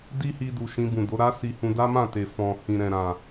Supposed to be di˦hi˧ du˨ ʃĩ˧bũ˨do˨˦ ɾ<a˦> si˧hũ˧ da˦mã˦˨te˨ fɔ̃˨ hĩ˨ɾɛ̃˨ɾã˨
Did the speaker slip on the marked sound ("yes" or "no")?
no